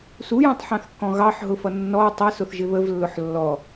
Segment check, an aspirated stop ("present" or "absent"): absent